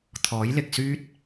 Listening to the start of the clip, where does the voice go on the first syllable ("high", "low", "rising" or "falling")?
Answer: rising